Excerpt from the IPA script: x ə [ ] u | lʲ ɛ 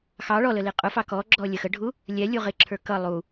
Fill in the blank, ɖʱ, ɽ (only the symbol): ɖʱ